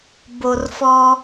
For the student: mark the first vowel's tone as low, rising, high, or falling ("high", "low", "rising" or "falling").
low